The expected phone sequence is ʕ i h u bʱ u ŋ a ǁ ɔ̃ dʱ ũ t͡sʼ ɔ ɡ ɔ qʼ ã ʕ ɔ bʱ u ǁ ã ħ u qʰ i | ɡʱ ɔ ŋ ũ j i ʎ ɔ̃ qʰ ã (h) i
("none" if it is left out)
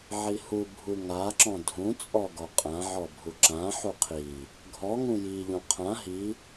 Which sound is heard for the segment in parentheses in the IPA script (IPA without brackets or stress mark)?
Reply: ɦ